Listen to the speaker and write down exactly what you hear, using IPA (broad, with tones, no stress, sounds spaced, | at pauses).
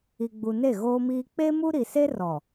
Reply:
i˨ ɡ͡b u˨ n e˦˨ ɣ oː˦ m iː˦ k͡p e˦ m u˦ ɾ i˨ s e˦ r ɔ˨